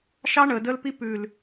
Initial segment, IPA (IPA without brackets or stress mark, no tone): ʃ